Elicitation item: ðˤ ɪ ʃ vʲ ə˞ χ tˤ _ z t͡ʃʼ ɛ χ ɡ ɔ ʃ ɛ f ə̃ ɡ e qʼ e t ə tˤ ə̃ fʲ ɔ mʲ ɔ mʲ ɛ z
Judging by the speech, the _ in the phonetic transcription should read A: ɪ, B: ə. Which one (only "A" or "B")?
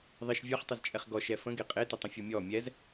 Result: A